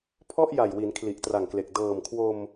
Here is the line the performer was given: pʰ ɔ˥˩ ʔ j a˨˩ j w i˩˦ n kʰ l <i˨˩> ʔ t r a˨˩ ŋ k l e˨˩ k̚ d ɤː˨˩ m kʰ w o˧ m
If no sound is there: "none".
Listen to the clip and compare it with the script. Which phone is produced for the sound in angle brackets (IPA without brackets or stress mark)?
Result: i˨˩